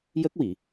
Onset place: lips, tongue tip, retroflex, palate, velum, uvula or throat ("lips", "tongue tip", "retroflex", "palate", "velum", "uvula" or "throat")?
palate